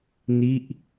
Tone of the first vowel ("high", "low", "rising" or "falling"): falling